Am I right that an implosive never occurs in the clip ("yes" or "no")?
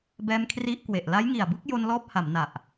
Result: yes